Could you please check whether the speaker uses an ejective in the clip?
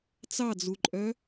yes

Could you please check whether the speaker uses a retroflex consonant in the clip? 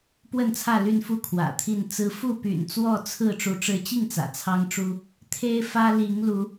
yes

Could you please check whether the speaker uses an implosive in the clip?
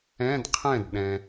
yes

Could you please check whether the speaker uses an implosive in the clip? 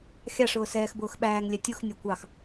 yes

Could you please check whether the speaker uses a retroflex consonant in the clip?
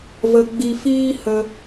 no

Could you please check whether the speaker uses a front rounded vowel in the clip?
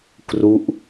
no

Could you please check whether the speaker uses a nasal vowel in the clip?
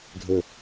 no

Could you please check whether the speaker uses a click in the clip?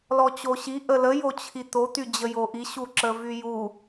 yes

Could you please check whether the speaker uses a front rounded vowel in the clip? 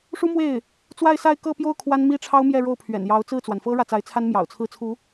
no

